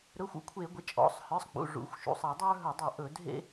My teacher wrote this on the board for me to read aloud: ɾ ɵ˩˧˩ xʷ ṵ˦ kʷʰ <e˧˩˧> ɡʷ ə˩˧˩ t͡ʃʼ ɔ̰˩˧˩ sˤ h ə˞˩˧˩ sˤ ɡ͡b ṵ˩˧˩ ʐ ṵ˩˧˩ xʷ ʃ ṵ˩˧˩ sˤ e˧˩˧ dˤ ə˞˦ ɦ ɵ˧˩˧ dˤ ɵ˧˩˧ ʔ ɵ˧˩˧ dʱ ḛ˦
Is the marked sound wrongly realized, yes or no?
no